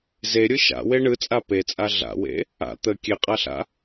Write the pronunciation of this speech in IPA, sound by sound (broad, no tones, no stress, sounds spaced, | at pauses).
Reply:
z e ɾʲ ɯ ʃ a̰ w e ɳ ɯ t͡sʼ a p e t͡sʼ a ɮ a̰ w ḛ | a̰ t̪ ə kʲ e qʼ a ɬ a̰